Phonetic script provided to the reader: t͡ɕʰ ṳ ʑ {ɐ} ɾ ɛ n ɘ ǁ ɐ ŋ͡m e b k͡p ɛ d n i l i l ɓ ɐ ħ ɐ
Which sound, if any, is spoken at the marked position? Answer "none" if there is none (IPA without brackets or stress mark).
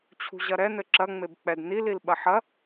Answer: ɐ